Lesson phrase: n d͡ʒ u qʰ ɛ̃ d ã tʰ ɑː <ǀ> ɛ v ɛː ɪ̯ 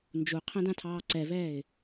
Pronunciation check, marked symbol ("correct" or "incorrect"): correct